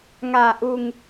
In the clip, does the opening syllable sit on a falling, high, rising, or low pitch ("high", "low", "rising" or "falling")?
low